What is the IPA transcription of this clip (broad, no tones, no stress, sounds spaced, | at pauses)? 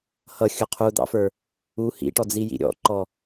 h ʌ xʲ ʊ qʰ u d̪ ɑ̰ f ə˞ | u h ḭ ʈ ɔ d͡z i j ḭ ɾʲ ɔ̰ ǃ ɔ